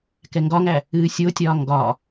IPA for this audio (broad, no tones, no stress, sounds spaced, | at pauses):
k ɛ ŋ ɡ ɒ ŋ æ | ɨː sʲ o tʲ ɒː ŋ ɡ ɒ